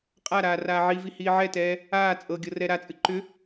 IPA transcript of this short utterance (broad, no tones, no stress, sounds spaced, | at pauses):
qʼ a ɾ aː r aː ʕ i v i h iː ʕ ɛ t ɛː | aː t͡sʼ ɤ ɡʲ ɤ r ɛ ɾ a t͡sʼ ɨ ǃ ʏ